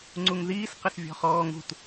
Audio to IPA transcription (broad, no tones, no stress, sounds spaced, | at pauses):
ŋ͡ǀ u ŋ ð iː s q ə s vʲ ɔ̤ χ ɔː ŋ ṳ t